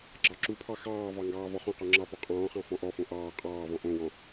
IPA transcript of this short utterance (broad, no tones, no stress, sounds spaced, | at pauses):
ɡ͡ǁ ɑ ǁ u pʰ ɑ x ɑː v ɑ ŋ ɡ ɑː v ɔ χ õ q ɔ ŋ͡ǁ ɑ p ɔ qʼ ɔ̃ː χ ɑ̃ f ɔ̃ ʔ ɔ f õ ʔ ɑː qʼ ɑː v ɔ̃ ʔ õ w ɔ̃